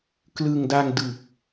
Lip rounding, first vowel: unrounded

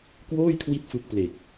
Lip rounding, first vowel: rounded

